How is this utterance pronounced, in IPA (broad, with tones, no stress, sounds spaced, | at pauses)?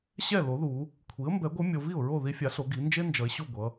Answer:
ɕ ɛ˥˩ l o˩˥ ð u˩˧ | kʷʰ i˩˥ ə̯ m b ɛ˩˥ ɡʷ ɯ˩˥ mʲ o˩˧ v i˥˩ ʊ̯ ɹ o˥˩ ð i˦ fʲ a˩˥ ɬ o˩˧ ɡ i˩˧ n d͡ʒ e˦ n d͡ʒ ʌ˩˧ ɪ̯ ɕ u˥˩ ɡʷ ʌ˩˧